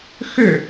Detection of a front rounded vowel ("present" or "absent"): present